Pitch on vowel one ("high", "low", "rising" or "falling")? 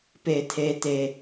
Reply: low